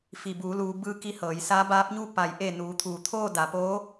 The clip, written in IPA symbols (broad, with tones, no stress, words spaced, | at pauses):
fi˩buː˩˧luː˩˧ bɯː˧ki˧ hɤː˩˧jsaː˧˥ baː˧˥p̚ɲu˥˨ pa˩˧jʔe˧˩ nuː˩˧t̪ʰuː˩t̪ʰoː˥˨ da˩˧poː˧˥